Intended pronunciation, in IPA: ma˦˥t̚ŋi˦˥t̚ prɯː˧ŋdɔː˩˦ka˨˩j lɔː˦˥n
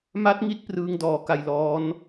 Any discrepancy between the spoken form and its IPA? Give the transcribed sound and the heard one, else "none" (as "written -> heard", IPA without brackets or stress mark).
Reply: none